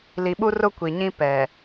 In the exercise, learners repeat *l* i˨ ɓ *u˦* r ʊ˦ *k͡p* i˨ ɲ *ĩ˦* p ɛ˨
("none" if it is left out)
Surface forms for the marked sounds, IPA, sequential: l, u˦, kʷ, ĩ˦

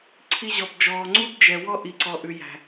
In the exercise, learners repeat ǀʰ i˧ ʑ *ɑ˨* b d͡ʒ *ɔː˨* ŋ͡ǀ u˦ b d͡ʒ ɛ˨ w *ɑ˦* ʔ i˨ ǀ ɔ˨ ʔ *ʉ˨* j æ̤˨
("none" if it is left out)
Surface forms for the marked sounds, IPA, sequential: ɔ˨, ɔː˨, ɔ˦, ʉ˨

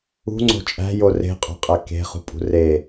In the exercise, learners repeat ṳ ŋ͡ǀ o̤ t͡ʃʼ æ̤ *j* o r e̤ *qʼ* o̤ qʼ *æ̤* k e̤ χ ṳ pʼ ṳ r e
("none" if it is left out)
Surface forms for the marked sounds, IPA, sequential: j, qʼ, æ

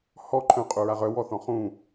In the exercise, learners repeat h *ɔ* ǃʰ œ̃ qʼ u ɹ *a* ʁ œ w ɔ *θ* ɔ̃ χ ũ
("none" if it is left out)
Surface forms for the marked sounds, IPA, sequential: ɔ, a, θ

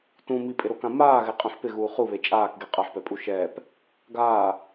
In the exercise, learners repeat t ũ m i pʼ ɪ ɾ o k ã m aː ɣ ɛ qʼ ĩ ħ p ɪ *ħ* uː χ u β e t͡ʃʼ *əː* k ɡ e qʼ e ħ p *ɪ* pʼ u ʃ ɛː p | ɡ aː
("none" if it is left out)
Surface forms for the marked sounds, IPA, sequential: ɣ, aː, ɛ

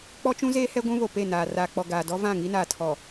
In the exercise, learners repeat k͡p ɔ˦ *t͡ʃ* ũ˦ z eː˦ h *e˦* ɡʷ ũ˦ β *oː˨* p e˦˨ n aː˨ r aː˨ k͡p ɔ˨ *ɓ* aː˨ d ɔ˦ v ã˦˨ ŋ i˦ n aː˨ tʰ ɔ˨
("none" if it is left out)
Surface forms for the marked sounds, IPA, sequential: t͡ʃ, ɛ˦, o˨, ɡ

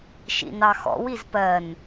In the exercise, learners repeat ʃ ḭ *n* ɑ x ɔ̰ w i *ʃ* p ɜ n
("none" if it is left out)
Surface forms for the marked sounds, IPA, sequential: n, z

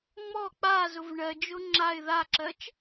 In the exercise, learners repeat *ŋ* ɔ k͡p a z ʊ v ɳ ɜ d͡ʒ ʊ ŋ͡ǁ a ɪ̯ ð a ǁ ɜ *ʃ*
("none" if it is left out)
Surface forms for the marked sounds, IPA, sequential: ŋ͡m, t͡ʃ

